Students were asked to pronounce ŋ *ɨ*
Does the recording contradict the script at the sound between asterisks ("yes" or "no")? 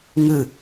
no